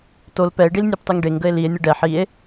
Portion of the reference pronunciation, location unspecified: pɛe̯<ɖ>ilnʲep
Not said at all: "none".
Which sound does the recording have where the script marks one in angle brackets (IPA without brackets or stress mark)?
ɖ